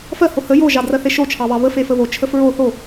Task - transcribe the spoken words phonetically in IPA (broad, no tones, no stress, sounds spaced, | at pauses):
f ɜ h o h ə j o ʒ ɑ d r ɜ θ e ʃ o t͡ʃʰ ɑ β ɑ β ə f e f ə β o t͡ʃʰ ə f ɹ o θ o